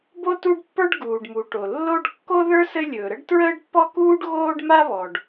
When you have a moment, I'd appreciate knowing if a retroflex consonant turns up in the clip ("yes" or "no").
yes